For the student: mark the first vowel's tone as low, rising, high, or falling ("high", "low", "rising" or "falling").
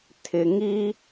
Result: low